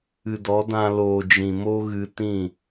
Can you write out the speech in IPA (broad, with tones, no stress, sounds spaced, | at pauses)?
ɨ˨ d ɔ˨˦ d ã˧ l oː˨ d͡ʒ ĩ˨ m o˦ ɣ ɨ˧ t ĩ˦˨